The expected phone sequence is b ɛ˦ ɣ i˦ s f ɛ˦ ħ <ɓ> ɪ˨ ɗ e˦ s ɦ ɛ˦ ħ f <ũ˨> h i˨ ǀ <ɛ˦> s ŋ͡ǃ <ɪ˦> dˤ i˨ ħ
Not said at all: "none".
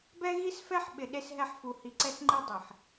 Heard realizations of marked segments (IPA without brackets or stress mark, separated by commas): ɓ, u˨, ɛ˦, i˦